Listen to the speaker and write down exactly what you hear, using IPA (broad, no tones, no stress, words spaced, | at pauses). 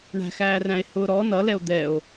ɳæ̤xæːræ̃e̯hʊː ɾɔ nʌlɛo̯ d̪ɛo̯